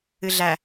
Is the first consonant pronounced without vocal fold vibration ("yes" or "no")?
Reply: no